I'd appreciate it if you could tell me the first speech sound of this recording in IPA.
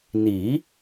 n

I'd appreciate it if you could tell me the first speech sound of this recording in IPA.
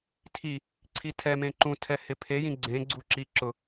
tʰ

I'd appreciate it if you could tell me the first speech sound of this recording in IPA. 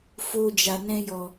f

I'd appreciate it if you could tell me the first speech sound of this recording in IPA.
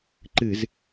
ǃ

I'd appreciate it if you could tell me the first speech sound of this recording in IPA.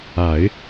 a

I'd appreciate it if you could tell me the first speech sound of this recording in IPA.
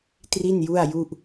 t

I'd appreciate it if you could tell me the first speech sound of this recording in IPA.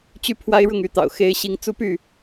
t͡ɕ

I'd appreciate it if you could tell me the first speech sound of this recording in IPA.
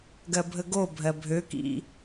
ɡ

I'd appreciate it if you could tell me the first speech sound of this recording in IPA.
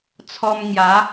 t͡sʰ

